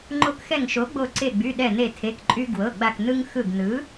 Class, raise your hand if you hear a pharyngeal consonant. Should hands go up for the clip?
no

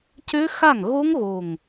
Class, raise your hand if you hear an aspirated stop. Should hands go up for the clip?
no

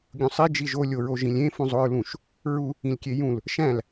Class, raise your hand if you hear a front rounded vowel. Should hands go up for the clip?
no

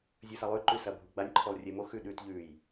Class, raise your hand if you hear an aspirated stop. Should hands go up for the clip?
yes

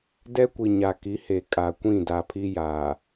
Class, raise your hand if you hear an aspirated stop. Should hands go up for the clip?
yes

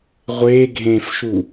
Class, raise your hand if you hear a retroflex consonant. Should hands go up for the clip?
no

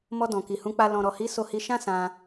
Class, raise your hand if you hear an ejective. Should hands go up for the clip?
no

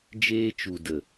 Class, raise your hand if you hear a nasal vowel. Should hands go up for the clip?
no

